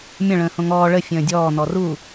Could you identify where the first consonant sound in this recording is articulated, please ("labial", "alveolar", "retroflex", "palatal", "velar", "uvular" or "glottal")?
labial